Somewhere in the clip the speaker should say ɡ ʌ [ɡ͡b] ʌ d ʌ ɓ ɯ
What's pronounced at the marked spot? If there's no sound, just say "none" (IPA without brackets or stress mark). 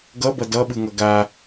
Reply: b